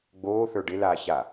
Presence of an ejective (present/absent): absent